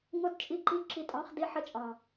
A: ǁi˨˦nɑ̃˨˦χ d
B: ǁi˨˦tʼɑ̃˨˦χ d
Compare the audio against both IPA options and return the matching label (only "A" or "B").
B